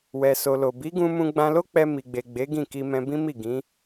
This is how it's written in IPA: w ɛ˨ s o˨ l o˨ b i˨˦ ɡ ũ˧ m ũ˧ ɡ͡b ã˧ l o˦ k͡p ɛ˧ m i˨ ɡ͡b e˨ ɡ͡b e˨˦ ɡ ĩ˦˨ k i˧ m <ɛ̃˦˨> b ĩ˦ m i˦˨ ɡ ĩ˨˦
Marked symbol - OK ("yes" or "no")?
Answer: no